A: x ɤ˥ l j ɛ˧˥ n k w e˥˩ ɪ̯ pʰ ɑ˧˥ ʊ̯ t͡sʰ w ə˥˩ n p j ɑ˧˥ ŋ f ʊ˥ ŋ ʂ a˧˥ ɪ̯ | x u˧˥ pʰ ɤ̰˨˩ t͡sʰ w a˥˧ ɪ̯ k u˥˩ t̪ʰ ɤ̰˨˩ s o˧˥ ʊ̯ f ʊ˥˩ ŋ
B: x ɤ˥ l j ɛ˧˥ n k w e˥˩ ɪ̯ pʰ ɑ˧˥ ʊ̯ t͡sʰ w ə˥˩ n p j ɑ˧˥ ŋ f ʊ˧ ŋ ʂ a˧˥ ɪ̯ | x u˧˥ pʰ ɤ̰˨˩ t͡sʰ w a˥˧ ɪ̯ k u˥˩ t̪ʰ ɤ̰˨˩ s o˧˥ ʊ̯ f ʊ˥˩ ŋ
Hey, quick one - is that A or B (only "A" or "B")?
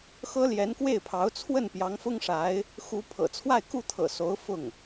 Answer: A